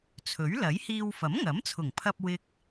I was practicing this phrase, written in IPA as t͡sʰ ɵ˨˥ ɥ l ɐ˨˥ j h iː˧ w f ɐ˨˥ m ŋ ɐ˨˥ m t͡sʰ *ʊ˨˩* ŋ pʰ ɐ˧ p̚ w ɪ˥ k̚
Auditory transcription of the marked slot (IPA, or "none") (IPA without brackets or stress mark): ʊ˨˩